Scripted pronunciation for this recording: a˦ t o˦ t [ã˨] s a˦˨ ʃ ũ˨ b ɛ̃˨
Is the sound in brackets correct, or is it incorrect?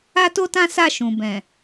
incorrect